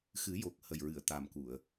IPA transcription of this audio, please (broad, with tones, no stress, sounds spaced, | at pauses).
x ɨ˨˩˦ j o˨˩ k̚ h ə˨˩ j ɹ ɨ˨˩˨ ə̯ t̪ a˨˩ m k u˨˩˨ ə̯